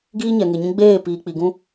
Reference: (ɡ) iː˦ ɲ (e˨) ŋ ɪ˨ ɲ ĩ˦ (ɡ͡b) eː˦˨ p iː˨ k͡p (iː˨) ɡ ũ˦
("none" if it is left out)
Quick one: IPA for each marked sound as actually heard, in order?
ɡ, ɛ˨, ɡ͡b, i˨

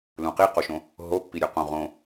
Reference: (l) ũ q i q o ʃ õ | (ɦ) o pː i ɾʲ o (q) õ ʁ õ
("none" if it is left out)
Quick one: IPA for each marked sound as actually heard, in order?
l, ɦ, q

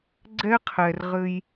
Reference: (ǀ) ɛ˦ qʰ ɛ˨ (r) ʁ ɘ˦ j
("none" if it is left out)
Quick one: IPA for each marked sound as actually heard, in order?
ɡ͡ǀ, r

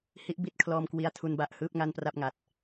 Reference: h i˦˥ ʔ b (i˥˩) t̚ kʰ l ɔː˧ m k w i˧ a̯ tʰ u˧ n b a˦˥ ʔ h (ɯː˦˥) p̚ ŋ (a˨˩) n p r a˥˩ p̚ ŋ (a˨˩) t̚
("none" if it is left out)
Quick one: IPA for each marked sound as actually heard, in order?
i˥˩, ɯː˦˥, a˥˩, a˨˩

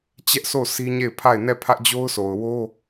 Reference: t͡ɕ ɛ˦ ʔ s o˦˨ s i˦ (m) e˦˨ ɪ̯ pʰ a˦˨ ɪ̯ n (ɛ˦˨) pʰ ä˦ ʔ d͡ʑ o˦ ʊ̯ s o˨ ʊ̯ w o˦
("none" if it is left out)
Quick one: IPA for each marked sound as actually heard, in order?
ɲ, ɛ˦˨

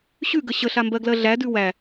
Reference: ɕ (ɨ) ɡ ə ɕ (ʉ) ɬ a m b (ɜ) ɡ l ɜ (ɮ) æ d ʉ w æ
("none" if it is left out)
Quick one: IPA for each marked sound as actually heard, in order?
ʉ, ə, ɜ, ɮ

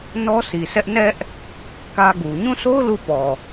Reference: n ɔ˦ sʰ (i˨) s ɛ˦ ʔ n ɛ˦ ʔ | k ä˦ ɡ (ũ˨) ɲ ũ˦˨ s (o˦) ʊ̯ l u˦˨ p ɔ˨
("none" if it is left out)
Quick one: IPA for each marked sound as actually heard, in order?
i˨, u˨, o˦

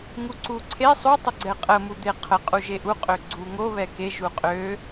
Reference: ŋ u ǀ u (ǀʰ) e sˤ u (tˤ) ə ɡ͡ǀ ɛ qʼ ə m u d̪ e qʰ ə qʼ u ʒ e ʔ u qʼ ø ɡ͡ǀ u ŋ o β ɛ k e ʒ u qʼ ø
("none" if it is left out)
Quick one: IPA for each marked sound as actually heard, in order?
ǀʰ, tˤ

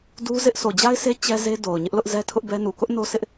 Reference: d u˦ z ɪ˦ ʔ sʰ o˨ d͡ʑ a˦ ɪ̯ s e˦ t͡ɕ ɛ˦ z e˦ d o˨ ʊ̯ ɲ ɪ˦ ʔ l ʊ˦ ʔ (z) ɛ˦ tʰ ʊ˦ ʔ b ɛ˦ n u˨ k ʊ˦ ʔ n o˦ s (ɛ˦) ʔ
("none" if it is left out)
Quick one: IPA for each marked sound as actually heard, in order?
z, ɪ˦

